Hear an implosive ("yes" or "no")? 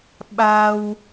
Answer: yes